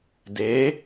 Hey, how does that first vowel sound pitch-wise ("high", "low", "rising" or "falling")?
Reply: rising